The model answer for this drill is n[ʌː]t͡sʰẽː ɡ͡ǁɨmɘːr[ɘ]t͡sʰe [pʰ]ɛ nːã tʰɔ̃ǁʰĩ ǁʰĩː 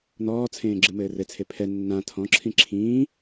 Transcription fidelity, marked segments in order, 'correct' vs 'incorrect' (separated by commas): incorrect, correct, correct